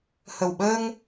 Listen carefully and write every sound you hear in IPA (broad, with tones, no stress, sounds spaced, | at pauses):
h ə˨˩ w ɓ əː˧ ŋ